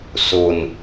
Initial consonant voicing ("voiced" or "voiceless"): voiceless